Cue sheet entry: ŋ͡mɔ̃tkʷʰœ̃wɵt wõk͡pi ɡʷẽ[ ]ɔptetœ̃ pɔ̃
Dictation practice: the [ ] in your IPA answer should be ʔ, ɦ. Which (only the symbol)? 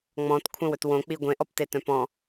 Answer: ʔ